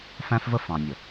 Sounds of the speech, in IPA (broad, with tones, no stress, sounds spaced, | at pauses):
f æ̃˦ f v ə˦ f ɑ̃˨ nʲ ə˨